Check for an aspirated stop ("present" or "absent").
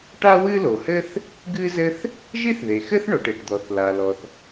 absent